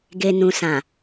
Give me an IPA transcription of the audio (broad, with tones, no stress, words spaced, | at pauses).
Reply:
ɡe˨nũ˨sã˨